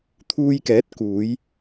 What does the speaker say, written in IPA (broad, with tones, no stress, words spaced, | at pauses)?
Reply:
t̪ʰuː˧jkɛː˨˥t̚ kuː˨˧j